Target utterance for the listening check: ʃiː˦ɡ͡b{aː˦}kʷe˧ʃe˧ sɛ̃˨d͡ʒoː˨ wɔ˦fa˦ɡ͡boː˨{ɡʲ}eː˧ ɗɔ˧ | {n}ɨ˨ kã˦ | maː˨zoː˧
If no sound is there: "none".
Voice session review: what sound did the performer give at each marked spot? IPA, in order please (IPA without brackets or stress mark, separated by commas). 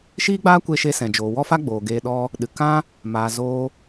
aː˦, ɡ, ɗ